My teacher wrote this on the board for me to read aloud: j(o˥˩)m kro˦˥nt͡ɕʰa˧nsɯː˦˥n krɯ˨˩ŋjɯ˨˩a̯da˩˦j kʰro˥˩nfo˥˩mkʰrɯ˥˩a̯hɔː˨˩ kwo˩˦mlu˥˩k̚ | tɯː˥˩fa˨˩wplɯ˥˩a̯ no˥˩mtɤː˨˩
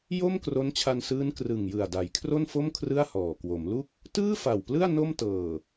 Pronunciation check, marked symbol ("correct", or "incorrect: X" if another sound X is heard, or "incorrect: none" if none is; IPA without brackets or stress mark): correct